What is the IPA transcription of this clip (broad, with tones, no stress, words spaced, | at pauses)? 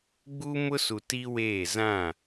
ɡ͡buː˦mʊ˦su˨ ti˦weː˦˨ zã˦˨